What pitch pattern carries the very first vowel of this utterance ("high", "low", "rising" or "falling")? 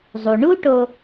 low